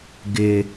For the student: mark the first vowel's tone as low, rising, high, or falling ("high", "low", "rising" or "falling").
high